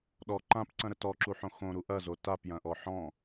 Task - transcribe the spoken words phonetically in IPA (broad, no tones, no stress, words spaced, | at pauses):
ɗɔ ǃãpǀɐ̃ɾə tɔǁuħõ xõɾu ʔɐzo tapjɐ̃ʔɔ ħɔ̃